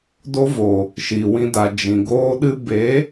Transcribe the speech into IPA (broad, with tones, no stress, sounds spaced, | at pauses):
d o˦ v oː˨ | ʃ iː˨ w ĩ˧ d a˨ d͡ʒ ĩ˨ ɡ oː˦ ɗ ɨ˦ b e˨˦